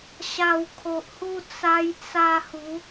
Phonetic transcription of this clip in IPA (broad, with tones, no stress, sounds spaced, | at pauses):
ɕ a˧ w kʰ o˨ ʔ h u˧ t͡s a˧ j t͡s a˧ h u˨˦